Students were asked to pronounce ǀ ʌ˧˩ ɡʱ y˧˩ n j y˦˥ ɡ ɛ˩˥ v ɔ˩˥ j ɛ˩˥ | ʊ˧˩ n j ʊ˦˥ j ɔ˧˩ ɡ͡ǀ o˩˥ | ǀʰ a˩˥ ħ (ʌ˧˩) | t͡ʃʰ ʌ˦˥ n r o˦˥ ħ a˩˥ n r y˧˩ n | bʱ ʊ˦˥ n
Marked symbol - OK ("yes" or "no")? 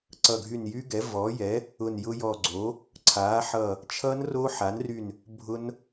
yes